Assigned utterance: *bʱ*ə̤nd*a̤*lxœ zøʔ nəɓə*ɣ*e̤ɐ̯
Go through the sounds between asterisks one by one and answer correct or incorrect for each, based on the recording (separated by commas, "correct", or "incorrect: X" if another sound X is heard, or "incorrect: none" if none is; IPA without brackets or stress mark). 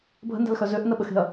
correct, correct, incorrect: x